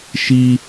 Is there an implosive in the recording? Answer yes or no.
no